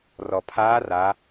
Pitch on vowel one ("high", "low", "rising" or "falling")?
low